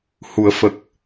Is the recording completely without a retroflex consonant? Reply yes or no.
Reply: yes